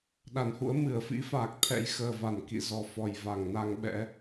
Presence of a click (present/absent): absent